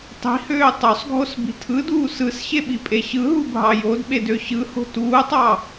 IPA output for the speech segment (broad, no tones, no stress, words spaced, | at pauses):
tˤi̤høː tˤosˤɡʱosbi̤ tʰɯduː sɯsɕeɓipʼe ɕɯɦubʱɑ jodɓedø ɕɯho̤ tuːtˤɑ